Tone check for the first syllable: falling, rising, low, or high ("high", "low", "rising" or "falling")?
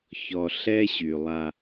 low